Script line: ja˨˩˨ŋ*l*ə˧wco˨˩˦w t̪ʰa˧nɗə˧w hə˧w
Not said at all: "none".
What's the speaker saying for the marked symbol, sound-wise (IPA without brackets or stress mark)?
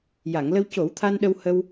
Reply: l